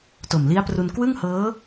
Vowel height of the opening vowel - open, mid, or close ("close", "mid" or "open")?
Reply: mid